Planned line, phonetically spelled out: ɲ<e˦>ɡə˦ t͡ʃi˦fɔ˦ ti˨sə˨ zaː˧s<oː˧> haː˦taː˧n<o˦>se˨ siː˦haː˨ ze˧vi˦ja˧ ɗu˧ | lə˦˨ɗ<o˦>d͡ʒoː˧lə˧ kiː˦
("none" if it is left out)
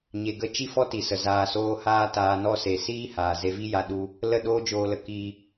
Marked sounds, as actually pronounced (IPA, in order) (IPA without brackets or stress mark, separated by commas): e˧, oː˦, ɔ˦, oː˦